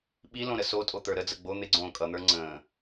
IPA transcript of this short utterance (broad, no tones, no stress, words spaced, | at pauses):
ɓi lõɾəsotʼo t̪ə˞ɾəd͡zə ɡ͡bo n̪ɪɡ͡ǀõː kʼʌn̪ə˞ ŋ͡ǀə̃ː